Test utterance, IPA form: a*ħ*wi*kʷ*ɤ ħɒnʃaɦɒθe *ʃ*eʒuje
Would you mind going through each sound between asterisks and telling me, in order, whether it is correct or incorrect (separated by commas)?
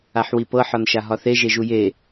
correct, incorrect, incorrect